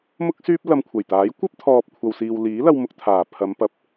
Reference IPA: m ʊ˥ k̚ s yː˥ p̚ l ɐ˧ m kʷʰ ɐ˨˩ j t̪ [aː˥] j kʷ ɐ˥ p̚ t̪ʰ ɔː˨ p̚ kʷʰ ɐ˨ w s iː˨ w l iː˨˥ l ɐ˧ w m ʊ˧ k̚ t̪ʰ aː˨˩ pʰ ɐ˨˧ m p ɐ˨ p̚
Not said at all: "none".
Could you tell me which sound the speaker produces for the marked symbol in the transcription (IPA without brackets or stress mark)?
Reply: aː˨˥